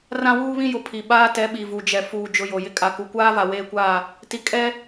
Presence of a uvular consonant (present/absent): absent